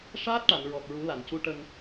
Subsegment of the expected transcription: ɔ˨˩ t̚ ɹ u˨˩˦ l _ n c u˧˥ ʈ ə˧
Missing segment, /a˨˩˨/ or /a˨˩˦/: a˨˩˨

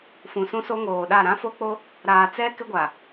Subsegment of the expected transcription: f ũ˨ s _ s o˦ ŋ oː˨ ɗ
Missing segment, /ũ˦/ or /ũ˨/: ũ˦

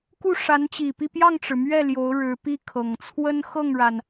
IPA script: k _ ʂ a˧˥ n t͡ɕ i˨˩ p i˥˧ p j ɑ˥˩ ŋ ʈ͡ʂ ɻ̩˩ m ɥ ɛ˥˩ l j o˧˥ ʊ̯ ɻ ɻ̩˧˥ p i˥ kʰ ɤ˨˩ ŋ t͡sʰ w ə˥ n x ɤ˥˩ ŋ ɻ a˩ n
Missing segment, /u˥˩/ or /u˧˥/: u˥˩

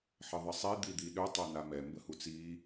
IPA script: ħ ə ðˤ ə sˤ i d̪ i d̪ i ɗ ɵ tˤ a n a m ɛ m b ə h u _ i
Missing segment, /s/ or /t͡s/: t͡s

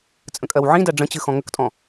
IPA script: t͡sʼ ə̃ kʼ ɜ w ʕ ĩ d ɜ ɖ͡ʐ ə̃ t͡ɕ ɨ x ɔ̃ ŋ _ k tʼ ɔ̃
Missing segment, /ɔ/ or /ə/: ə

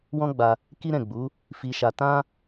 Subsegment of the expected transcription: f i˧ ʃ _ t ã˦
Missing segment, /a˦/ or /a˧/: a˧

